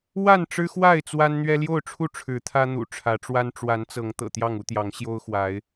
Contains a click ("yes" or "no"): no